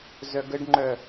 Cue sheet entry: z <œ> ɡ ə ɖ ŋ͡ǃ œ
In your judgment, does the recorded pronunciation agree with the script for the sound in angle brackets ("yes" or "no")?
yes